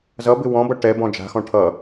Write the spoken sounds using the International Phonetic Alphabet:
zʌbɪ wɔ̃bʌ ʈɛbɔ̃ d͡ʒa̤xɔ̃ ʈʰʌ

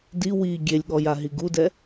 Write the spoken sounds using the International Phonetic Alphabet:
di wi ɡʲelʲɠɔjaɦi ɡudɛ

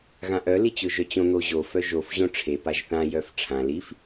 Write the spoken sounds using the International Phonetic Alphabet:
ɣãʔœ lit͡ɕʊʒœt͡ɕõ n̪oʑo fœʒof ʑõʈ͡ʂʰe paʒθã jœfʈ͡ʂʰã lif

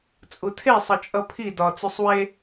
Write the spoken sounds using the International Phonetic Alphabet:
t͡sʼutʰe sˤʌt͡ʃʼʌpʰi dɒ t͡susˤwe

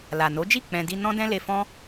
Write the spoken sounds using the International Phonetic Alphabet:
la˨no˨˦d͡ʒi˦˨ k͡pɛ̃˧ di˧ nɔ̃˦dɛ̃˦ le˧fɔ̃˦

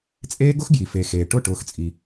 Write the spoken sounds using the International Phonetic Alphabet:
t͡sʼeː˦ɡʊ˦xɡji˨ fe˨xeː˨ʈʊ˦˨ ʈʊː˦xt͡sʼi˦

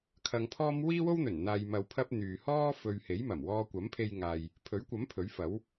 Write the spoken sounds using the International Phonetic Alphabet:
kʰɐ˧ŋpʰɔː˥m wiː˥wo˥wn̪ɵ˨˩n n̪aː˨jmɐ˨wpʰɐ˧p̚ n̪yː˨hɔː˥ fɵ˨ɥ he˨˥jmɐ˨˩m wɔː˧kʷɐ˨˥mpʰe˧jŋaː˨j | pʰɵ˨˥ɥkʷɐ˨˥m pʰɵ˨˥ɥfɐ˨˥w

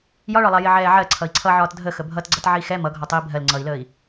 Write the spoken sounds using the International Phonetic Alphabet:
jɒɭɒlˠɑ jɪʕɛːʕɜ ǀʰʌi̯ǀʰʌʕɒːt dʱə xəbʱʌtɡ͡ǀʌt ʕixɛ mʌɡʱɒ tˤiːbʱɜl ŋ͡ǀʌi̯ləːi̯

